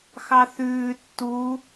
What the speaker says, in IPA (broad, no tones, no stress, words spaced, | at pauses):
xɑθʉː tːu